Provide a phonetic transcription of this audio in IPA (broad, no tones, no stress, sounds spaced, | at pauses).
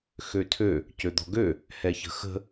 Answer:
x ø tʰ ø | c ø d̪ ɔ̤ ɡ ø | h ɛ ç ə̤ x ə̤